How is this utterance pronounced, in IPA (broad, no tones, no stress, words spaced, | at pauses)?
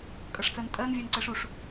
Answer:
kʼʌʂt͡sɜntʼɜn vʲɛnǀɛʂuʂ